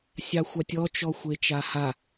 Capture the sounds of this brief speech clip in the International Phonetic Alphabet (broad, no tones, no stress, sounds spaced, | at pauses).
sʲ ɑ xʷ ɑ tʲ ɔ t͡ʃ ɔ xʷ e t͡ʃ a h a